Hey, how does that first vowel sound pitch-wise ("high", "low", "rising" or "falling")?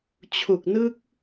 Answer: low